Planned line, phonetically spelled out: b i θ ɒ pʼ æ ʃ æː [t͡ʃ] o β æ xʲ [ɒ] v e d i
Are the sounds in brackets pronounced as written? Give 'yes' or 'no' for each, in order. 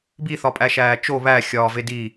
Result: yes, no

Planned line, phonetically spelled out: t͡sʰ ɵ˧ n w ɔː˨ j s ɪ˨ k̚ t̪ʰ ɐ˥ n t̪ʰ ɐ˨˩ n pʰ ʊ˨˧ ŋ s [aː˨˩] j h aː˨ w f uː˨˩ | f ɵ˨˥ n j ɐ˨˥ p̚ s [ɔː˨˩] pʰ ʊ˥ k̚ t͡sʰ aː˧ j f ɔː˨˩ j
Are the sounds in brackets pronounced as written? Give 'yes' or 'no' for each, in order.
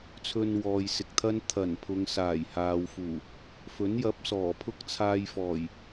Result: yes, yes

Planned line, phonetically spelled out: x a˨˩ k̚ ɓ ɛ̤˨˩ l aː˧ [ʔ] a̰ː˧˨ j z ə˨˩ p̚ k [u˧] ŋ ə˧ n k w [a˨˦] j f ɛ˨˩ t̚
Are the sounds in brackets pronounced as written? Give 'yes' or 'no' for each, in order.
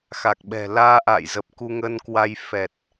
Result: yes, yes, no

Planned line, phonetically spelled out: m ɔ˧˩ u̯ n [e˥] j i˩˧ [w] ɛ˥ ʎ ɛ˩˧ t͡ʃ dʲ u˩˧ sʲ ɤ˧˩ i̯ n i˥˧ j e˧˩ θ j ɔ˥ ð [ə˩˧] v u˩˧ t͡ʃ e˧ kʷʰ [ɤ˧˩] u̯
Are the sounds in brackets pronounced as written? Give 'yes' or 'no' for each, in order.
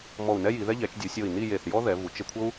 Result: no, no, no, no

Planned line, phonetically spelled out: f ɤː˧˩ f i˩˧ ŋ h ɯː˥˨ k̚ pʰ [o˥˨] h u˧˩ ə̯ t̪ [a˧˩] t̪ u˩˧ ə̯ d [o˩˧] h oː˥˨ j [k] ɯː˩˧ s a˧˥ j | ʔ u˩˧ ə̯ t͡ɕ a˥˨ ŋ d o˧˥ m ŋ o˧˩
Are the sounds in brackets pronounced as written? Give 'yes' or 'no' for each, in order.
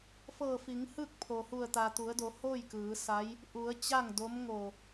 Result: no, no, yes, yes

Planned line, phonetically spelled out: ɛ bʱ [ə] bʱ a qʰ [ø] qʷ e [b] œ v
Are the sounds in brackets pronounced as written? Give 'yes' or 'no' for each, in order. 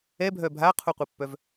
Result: no, no, no

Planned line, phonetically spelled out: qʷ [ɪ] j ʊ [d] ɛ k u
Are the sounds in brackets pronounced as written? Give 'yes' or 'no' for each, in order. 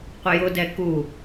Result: yes, yes

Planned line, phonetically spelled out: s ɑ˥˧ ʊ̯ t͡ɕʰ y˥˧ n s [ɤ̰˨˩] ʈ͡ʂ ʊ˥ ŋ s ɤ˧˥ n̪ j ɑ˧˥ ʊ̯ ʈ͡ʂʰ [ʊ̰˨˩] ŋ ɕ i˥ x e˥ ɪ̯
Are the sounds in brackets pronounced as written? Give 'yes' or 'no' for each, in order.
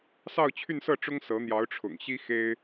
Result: no, yes

